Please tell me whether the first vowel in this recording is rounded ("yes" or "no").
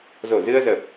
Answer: yes